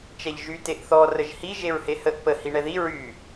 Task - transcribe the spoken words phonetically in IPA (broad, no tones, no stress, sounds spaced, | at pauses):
t͡ʃ ɛ ʎ ʒ y t e ʔ θ ɔ r ə ʒ h i ʒ e ɹ h e h ə ʔ p ə h i ɳ ɛ ð i ɹ y